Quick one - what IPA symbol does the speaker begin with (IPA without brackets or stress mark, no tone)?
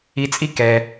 i